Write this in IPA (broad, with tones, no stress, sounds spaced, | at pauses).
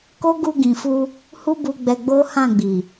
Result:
k o˦ ɡ u˧ ɡ ĩ˨ f u˧ | h u˦ b u˧ ɡ͡b ɛ˧ ɡ͡b o˦ h ã˦˨ ɡ͡b i˨